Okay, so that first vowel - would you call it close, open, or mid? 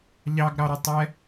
open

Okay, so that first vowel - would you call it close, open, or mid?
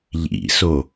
close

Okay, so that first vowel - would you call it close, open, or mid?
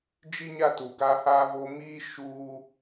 close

